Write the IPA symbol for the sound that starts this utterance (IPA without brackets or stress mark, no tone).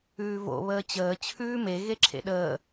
ʉː